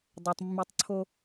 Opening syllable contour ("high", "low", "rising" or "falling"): low